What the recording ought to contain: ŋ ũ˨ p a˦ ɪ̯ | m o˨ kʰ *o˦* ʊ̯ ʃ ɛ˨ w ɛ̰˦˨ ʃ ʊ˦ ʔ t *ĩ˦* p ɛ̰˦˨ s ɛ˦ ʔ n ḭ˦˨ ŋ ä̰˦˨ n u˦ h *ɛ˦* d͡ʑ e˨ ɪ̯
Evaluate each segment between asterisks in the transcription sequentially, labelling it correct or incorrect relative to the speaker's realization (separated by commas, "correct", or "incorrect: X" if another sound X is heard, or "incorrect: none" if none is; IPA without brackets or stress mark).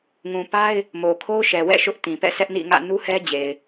correct, incorrect: ĩ˨, correct